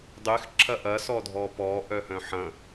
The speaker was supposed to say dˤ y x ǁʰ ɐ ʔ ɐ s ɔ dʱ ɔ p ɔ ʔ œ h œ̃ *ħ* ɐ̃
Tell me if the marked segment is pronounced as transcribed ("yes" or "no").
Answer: yes